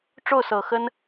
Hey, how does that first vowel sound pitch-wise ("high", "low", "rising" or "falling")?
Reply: falling